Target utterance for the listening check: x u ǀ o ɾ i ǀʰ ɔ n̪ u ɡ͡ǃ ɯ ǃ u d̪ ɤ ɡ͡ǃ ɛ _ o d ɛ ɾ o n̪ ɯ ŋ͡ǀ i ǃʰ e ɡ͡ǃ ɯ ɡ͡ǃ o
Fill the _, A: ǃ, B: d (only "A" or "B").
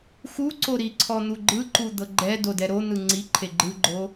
B